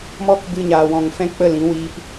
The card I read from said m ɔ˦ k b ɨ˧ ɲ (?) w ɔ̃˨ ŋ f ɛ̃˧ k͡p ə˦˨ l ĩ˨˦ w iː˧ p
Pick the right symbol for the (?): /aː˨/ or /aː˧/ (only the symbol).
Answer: aː˨